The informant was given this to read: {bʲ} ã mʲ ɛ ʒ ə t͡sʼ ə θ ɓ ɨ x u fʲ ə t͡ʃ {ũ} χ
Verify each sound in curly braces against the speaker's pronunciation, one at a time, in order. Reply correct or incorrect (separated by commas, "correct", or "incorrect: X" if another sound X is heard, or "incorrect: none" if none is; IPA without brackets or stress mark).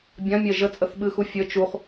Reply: correct, incorrect: u